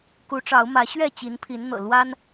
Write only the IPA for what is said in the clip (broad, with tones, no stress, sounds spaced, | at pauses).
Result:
k u˨˦ ʈ͡ʂ ɑ˨˦ ʊ̯ m ä˨˦ ɕ ɥ ɛ˥˨ t͡ɕ i˨˦ n pʰ i˨˦ n n̪ ɤ̰˨˩ l w a˦ n